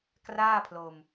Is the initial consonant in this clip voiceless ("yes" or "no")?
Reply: yes